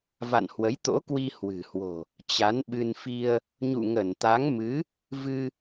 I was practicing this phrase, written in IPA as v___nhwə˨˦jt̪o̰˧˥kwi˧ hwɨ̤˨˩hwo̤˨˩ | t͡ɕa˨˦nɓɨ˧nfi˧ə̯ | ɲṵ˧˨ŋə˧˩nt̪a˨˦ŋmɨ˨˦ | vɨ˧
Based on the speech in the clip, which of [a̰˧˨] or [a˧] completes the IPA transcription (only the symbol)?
a̰˧˨